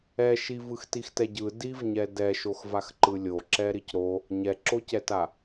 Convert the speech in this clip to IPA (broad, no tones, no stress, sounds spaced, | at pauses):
ɛ ʃ i v ɯ x t i x t ɛ ɟ ɯ d i v ɲ ɛ d ɛ ʃ o x v a x ǃ ɯ lʲ o ǁ ɛ ɾ i c ɾ o | ɲ ɛ ǁ o c ɛ t a